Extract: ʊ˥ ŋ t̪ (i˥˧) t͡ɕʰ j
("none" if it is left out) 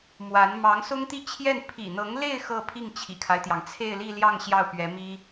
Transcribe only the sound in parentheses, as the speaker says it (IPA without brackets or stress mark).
i˥˧